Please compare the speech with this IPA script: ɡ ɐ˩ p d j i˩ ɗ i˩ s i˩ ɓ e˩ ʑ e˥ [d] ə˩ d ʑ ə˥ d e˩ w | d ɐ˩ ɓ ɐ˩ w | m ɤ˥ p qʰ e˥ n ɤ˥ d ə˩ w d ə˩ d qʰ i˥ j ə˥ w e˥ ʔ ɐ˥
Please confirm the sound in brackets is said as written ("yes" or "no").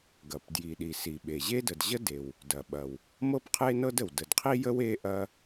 yes